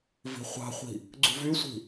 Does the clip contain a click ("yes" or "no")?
yes